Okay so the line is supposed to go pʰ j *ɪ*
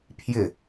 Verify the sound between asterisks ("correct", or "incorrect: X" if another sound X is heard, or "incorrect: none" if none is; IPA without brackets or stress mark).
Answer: correct